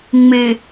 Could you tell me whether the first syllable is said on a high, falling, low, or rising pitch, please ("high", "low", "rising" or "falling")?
low